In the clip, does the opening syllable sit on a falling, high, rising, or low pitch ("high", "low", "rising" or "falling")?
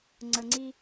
low